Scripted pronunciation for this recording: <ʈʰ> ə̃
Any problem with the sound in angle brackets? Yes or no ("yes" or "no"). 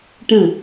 yes